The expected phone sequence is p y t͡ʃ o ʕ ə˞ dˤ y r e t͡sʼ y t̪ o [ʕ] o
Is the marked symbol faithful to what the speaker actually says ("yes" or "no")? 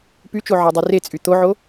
yes